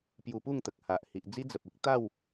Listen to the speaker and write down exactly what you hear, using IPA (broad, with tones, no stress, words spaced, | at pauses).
pju˧pu˥˧ŋt̪ə˨k̚ ha˨ʔ hi˨ʔd͡zi˦ d͡zə˨p̚i˦k̚ t̪a˥˧w